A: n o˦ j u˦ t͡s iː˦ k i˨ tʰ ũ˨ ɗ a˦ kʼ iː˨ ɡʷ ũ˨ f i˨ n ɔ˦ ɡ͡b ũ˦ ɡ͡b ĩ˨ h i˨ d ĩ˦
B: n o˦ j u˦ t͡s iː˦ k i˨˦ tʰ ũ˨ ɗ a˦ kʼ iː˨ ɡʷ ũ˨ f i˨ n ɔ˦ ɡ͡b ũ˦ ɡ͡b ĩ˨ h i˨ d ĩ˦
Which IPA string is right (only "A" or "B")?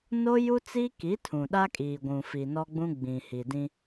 B